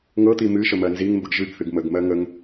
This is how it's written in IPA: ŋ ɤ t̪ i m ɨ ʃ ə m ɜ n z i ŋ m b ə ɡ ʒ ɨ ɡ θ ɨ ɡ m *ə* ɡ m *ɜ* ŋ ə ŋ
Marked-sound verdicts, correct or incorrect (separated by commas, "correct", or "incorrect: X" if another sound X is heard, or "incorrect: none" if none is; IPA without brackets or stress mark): correct, correct